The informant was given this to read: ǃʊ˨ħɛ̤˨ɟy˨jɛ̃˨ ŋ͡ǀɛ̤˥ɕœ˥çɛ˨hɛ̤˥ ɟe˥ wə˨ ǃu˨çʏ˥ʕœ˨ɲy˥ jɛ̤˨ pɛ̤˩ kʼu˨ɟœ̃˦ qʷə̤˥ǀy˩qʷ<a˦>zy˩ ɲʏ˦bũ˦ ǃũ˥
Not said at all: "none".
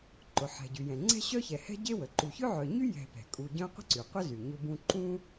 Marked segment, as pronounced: ə˦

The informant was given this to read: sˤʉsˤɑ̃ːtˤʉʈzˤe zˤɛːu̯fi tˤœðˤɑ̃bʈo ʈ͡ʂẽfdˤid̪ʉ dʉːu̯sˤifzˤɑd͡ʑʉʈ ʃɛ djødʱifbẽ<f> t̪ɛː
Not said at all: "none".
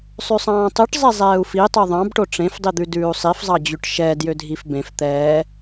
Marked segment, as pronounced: f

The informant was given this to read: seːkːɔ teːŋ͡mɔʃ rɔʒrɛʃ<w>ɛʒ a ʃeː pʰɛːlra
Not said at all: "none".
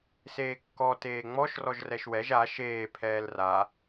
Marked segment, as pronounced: w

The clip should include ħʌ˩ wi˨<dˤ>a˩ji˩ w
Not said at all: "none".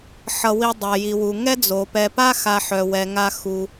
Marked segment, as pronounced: dˤ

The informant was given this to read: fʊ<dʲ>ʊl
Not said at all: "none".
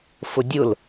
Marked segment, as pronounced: dʲ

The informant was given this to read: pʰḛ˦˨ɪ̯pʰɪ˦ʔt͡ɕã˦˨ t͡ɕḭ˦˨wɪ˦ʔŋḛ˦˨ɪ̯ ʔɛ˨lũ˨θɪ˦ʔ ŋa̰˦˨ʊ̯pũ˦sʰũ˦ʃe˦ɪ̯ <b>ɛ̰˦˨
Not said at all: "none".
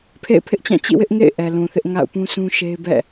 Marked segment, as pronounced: b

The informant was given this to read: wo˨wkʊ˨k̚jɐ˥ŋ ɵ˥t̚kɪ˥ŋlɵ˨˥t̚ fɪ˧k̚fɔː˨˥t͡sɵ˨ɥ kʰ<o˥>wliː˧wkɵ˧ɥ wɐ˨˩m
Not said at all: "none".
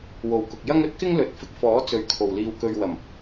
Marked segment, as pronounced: o˨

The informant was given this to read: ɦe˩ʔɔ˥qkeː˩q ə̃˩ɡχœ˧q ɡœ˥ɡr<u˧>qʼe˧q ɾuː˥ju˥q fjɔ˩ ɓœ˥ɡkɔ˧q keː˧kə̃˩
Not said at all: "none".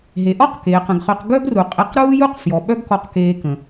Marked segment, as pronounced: u˩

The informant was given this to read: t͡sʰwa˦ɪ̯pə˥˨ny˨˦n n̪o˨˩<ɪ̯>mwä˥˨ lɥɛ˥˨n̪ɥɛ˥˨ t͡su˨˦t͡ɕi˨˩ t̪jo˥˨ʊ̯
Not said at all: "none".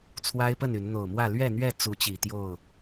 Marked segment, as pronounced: ʊ̯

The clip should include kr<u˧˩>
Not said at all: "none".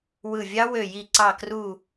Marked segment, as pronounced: u˧˩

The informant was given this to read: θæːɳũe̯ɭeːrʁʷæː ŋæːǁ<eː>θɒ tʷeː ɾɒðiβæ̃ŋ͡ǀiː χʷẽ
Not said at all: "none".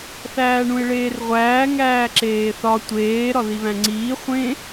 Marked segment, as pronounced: eː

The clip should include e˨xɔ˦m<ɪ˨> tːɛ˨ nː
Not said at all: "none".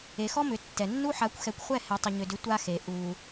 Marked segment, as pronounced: ʏ˨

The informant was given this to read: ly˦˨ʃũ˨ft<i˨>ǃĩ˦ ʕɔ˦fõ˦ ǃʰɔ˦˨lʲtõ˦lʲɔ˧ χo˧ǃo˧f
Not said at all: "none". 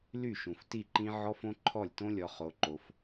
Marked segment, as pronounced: i˦˨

